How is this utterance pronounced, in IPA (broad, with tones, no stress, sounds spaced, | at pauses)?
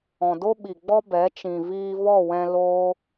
ɔ̃˨ d o˦ ɓ i˨ ɡ͡b ɔ˦ b ɛ˨˦ t͡ʃ ĩ˨ v iː˧ v ɔ˦˨ w ɛ̃˧ l oː˦